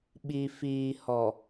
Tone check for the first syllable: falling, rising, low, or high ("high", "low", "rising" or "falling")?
low